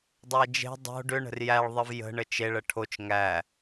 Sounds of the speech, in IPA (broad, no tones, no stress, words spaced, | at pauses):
dˤæd͡ʒe̤ dˤo̤ ɖʏ ɳə̤rjæɭ ðˤəvjə̤ ɳət͡ʃe ɭəʈʰot͡ʃ ŋæ